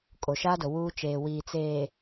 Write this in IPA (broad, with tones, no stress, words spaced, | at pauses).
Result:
kʼo˨ʃaː˦do˨ wuː˦ t͡ʃeː˨wiː˨ t͡seː˨